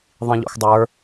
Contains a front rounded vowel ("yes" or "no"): no